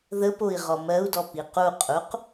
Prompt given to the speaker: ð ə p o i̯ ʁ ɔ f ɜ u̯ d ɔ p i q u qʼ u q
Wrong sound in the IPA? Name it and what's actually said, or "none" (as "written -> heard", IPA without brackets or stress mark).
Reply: f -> m